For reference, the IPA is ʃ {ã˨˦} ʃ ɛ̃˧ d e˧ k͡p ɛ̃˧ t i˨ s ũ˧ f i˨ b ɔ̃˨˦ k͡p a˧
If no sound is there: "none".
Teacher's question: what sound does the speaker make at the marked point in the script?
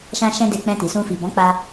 ã˧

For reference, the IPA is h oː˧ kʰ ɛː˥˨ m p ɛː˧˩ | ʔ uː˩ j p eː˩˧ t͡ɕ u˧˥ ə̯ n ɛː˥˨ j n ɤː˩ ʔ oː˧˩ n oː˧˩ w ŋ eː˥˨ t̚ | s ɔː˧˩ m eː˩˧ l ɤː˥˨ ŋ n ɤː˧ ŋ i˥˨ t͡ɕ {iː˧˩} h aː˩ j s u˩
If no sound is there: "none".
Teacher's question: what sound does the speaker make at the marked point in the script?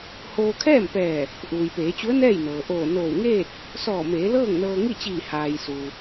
iː˧˩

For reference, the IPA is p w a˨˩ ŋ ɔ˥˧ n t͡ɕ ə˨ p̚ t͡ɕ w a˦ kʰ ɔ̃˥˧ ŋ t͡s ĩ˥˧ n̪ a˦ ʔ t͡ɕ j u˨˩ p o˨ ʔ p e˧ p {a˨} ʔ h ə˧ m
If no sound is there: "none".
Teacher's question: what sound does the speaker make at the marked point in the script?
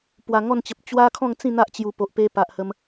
a˨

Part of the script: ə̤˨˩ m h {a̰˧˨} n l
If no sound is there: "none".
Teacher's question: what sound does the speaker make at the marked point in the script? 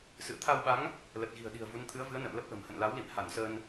ə̰˧˨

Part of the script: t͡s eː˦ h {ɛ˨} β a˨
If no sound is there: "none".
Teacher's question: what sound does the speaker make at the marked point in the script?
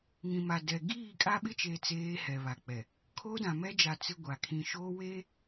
ɛ˨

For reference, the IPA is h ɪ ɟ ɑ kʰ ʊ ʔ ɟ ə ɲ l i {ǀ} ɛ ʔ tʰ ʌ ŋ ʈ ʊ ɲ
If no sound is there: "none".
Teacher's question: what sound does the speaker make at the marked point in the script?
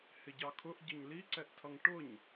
ǀ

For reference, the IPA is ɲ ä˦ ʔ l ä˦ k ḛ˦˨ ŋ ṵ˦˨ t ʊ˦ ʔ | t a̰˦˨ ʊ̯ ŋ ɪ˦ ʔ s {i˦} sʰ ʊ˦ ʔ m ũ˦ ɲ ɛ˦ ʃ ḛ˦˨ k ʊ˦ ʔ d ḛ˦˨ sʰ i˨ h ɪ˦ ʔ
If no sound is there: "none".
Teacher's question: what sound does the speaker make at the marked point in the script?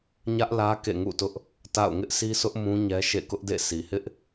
i˦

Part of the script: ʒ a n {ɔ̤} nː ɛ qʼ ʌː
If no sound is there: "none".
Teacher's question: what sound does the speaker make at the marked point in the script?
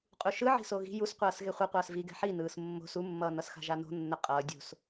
o̤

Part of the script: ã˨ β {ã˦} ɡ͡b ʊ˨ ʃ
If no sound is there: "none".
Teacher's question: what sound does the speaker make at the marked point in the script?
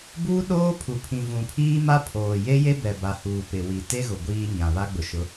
a˦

